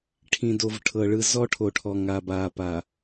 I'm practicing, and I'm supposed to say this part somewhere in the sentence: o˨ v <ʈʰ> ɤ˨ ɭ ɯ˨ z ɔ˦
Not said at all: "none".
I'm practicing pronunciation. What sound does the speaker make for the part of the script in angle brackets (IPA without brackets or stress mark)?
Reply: ʈʰ